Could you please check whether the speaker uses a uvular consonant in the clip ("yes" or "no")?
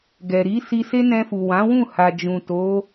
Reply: no